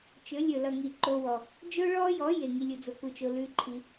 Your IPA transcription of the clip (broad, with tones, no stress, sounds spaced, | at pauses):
t͡ʃ ɵ˨˦ lʲ ɵ˨ l ʌ˨ ŋ i˨ ǃ o˧ w ɔ˨ | d͡ʒ o˦ ɭ ɔ˦ j ɔ˨˦ j e˨ ŋ i˧ lʲ u˨ d͡z o˧ k u˧ t͡ʃ o˧ l ʉ˦ ǃʰ i˧